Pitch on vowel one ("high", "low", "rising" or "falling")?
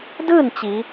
falling